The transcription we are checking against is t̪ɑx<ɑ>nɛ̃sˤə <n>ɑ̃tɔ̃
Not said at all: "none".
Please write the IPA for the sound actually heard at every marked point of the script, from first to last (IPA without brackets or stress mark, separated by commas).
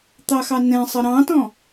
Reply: ɑ, ɾ